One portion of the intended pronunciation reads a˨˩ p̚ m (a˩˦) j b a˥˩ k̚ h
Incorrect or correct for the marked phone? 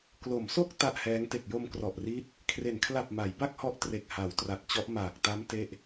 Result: correct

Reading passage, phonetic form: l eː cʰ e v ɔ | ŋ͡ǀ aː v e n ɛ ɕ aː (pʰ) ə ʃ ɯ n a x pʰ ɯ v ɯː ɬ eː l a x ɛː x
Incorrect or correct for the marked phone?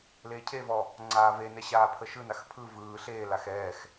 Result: correct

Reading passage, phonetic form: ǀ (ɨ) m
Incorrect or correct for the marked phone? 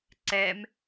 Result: incorrect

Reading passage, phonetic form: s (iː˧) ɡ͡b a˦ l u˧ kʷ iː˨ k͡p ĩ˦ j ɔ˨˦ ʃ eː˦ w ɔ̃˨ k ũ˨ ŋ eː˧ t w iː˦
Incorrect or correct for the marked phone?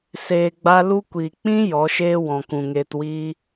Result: incorrect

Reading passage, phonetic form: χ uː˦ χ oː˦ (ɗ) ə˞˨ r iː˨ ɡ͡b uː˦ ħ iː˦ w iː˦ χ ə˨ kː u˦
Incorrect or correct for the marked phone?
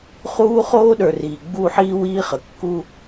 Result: correct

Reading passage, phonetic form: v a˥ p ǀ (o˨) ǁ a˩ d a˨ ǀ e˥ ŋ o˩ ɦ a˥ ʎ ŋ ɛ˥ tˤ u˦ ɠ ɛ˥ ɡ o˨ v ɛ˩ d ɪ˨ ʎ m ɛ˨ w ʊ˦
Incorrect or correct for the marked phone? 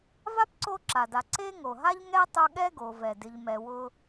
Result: incorrect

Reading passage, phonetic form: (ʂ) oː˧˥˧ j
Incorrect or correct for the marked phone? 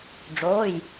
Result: incorrect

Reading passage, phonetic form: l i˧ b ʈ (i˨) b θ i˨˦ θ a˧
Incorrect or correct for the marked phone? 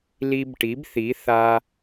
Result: incorrect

